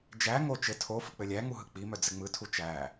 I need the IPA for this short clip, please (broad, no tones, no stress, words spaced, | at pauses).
d͡ʒæ ŋo t͡ʃɘ tʰo fɯk͡pɘlʲæŋu ɦɯk͡pimœ d͡zɘŋ͡mɯtʰu t͡ʃæ